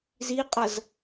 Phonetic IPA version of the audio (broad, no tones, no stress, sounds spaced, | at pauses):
z i qʼ ʌ z